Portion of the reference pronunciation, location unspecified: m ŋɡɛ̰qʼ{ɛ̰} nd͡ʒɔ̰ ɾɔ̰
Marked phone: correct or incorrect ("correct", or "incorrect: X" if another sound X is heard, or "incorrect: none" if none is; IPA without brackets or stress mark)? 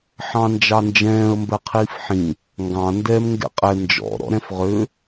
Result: incorrect: ɛ